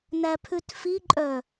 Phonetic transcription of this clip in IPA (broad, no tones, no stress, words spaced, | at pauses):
næpʰʉtfiǃʼœ